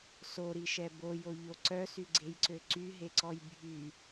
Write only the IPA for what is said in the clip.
soɾiʃɛ bojoʎo ǀœsyɡ͡ǀejǀø ǀyɦeǀɔj bʱy

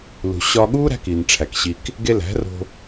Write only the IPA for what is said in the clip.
lṳ˨ɕɒ˧ɠuː˦ ɾæ̤˦kiː˨nʈ͡ʂʰæ˨kɕi˧k | ɡe˧læ̤˨˦ro̤˧

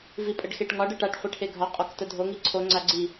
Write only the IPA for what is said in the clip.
vipʼəɖxeʈŋɒɖ əʈaʈ χʷeʈʰeɡʱɒ qʼɒktədʱo ŋiǀʰo ŋ͡ǀaɡ͡ǀi

